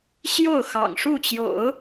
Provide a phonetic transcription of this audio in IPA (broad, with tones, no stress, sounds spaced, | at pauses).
ɕ j o˥˩ ʊ̯ x ɑ̰˨˩ ŋ ʂ u˥˩ t͡ɕ j o̰˨˩˦ ʊ̯